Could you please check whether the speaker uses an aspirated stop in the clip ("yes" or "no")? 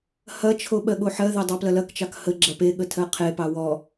yes